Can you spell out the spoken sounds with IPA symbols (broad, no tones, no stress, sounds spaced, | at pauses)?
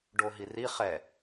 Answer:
ɖ o ɦ i r i χ ɛ